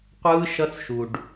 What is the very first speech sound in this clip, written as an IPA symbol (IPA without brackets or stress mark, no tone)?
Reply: qʷ